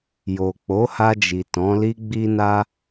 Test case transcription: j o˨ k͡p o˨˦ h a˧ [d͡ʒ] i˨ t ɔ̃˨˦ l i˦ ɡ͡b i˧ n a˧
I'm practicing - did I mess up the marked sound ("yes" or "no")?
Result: no